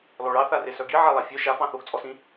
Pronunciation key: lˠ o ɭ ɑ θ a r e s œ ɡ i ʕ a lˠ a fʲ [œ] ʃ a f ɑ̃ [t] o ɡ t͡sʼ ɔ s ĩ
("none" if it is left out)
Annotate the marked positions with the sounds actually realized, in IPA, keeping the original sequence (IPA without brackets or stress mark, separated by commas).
œ, θ